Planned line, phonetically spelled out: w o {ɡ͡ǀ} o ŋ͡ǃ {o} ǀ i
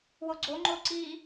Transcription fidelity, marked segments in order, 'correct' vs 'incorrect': correct, correct

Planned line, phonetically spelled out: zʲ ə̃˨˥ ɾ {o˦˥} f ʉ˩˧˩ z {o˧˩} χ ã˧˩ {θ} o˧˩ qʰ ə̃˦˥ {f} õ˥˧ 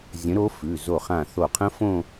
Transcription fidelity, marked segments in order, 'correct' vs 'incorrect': correct, correct, correct, correct

